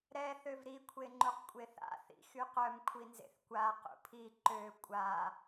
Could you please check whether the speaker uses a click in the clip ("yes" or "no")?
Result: yes